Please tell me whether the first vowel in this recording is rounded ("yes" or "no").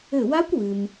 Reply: no